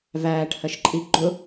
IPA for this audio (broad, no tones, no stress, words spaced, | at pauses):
væːʈhɜʃǃʼi ɡ͡ǃʊ